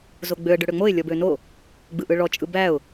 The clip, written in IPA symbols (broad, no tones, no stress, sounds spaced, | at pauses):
z o ɡ͡b ø ə̯ ɖ ø ɽ ø ŋ͡m o ɪ̯ lʲ ɔ b ø n o | ɡ͡b ɯ ʔ ɯ ɭ ɔ t͡ʃʼ ɯ b æ ʊ̯